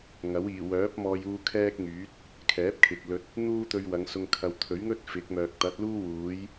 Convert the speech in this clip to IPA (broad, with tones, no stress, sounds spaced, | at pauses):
ŋ ɐ˨˥ w iː˨˩ w œː˨˥ p̚ m ɔː˧ j uː˧ kʰ ɛː˥ k̚ ŋ yː˨˥ t̚ | kʰ ɛː˨˥ p̚ kʰ ɪ˨ k̚ l ɵ˧ t̚ | n̪ uː˥ t̪ ɵ˧ ɥ w ɐ˨˧ ŋ s ʊ˧ ŋ kʰ ɐ˨ w t̪ʰ ɵ˨˥ ɥ ŋ ɵ˥ t̚ f ɪ˨˥ k̚ m œː˨ k̚ t̪ ɐ˨˥ t̚ l uː˥ w uː˨˥ j